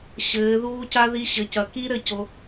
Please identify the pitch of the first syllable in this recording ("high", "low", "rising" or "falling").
rising